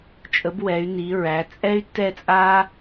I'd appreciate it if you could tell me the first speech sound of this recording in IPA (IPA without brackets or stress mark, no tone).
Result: t͡ʃʼ